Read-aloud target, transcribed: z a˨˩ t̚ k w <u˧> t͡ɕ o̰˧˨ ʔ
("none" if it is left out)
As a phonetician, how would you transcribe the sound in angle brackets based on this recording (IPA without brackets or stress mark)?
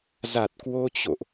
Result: o˧